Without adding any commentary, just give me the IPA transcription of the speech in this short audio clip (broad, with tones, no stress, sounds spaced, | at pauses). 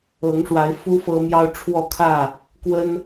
ɤ˨˦ ŋ ʂ w a˨˦ ɪ̯ f u˦ f ɤ˦ m j ɑ˦ ʊ̯ ʈ͡ʂʰ w ɔ˥˨ kʰ ä˥˨ | k w ə˦ n